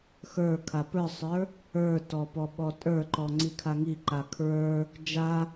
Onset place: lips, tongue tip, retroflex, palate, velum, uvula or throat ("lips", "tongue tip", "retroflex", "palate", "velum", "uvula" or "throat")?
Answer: velum